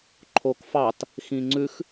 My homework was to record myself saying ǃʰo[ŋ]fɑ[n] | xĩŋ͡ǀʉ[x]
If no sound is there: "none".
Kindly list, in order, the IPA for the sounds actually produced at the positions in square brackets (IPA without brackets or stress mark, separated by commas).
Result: k, t, x